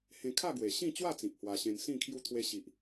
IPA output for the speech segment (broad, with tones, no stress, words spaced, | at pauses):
hẽ˧kʰa˥˧ ɡwe˨˩ɕĩ˥˧ t͡ɕwa˥˧t͡sĩ˨p̚ hwa˧ɕẽ˧n sĩ˥˧kʰju˦ t̪ʰwe˧ɕi˨ʔ